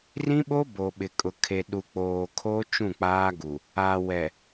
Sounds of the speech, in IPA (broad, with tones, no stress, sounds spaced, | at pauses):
r ĩ˦ ɓ o˦ b o˨ ɓ ɪ˨ kʼ ʊ˨ kʰ e˨ ɗ u˨ k͡p oː˨ kʰ oː˦ t͡ʃ ũ˦˨ k͡p aː˦ ɡ u˨ | a˨ w ɛ˨